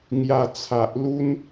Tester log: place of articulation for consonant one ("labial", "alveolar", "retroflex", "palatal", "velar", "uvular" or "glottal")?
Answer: velar